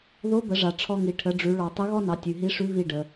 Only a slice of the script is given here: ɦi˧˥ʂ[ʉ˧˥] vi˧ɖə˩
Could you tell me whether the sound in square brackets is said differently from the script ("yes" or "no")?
no